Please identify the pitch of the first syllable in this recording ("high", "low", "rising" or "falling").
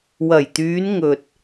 low